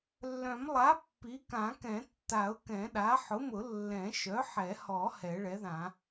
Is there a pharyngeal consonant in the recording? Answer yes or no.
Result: yes